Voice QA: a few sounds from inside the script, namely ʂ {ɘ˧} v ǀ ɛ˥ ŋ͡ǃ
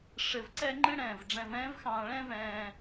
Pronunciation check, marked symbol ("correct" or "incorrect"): correct